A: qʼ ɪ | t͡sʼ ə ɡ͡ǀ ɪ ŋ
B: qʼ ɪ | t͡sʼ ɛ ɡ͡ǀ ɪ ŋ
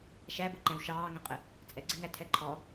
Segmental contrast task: B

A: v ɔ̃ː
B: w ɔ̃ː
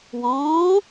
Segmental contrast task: B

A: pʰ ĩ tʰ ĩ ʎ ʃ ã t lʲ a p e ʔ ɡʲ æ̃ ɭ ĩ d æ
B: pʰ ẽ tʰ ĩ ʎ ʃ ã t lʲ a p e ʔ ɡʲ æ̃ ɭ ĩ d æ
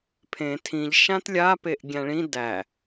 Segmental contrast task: B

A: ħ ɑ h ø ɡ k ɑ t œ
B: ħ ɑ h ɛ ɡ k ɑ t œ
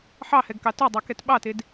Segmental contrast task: B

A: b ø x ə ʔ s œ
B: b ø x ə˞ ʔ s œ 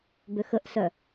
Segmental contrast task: A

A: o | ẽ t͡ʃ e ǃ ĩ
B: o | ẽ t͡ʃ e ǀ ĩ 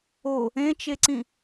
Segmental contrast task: B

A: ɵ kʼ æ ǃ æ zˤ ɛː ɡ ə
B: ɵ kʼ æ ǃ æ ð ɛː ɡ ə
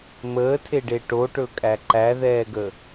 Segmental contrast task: B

